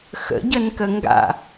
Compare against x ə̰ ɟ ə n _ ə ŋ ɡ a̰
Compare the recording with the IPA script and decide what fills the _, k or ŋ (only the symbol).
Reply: k